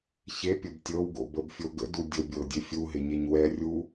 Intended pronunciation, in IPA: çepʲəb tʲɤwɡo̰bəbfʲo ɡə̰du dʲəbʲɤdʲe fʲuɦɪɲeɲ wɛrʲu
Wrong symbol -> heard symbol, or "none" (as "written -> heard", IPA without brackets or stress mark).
none